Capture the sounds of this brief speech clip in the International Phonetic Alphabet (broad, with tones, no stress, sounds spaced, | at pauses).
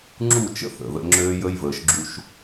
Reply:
ŋ͡ǁ u˦˨ t͡ʃ ə̰˦ θ ə̰˨ ð ə̰˦ ŋ͡ǁ øː˦ j ə˦ j v əː˨ ʃ ɡ͡ǁ u˦ ʃ